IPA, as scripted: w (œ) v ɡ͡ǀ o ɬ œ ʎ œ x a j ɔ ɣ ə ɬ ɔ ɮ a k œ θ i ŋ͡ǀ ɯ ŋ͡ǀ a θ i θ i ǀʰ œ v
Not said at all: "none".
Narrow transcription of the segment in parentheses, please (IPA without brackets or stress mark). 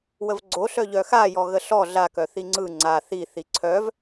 ə